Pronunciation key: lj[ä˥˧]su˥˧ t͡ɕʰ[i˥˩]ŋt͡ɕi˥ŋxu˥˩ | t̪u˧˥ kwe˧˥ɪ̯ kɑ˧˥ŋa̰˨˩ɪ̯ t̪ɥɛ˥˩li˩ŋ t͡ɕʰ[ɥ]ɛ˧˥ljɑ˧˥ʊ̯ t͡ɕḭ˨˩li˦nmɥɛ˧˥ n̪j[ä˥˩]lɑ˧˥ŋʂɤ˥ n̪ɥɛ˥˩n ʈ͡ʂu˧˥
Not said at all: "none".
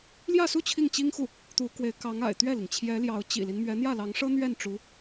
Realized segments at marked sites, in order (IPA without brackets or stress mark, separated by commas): ä˥˧, i˥˩, j, ä˥˩